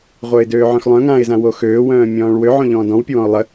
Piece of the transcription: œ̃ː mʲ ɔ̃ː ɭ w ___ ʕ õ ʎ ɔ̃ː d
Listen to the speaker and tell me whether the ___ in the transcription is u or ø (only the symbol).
ø